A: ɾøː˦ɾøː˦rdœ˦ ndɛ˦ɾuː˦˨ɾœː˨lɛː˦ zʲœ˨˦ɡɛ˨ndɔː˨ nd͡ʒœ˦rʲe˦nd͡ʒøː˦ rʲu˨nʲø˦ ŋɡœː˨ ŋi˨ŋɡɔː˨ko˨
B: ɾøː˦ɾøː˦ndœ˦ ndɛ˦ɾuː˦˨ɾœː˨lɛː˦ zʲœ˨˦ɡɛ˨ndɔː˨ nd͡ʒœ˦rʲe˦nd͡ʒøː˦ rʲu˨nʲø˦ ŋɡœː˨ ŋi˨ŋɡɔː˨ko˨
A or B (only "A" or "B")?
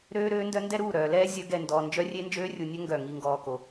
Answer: B